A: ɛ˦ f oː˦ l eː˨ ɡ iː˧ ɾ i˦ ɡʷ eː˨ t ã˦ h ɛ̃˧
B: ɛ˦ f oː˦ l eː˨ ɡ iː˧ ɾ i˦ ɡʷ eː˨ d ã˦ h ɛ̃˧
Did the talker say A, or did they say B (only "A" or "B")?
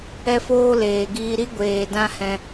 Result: B